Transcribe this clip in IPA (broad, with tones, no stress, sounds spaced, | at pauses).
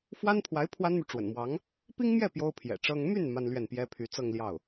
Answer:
f w a˥ n pʰ w a˧˥ ɪ̯ pʰ w a˥ n m y˨ ʈ͡ʂ w ə̰˨˩ n m w ɑ˧˥ ŋ | p i˥ ŋ m j ɛ˥˩ p j o˥ ʊ̯ pʰ j ɛ̰˨˩ ʈ͡ʂ ɤ˥ ŋ m y˥˩ n m a˥ n l ɥ ɛ˥˩ n p j ɛ˥ pʰ y˧˥ t͡s ɤ˥˧ ŋ l j ɑ˥˩ ʊ̯